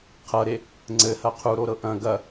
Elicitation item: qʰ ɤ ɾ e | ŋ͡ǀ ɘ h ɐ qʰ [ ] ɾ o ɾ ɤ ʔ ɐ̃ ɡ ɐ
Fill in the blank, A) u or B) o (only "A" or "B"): A